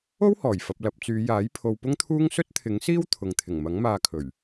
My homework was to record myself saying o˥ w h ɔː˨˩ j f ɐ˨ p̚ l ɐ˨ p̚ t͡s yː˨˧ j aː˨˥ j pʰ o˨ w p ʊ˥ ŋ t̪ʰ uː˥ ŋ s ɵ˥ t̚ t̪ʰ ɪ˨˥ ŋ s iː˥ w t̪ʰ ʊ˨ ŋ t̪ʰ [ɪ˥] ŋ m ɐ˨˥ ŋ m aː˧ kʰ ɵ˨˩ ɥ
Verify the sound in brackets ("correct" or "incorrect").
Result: incorrect